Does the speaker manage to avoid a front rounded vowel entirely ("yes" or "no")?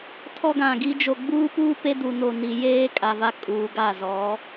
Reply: yes